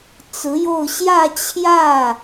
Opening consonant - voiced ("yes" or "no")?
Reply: no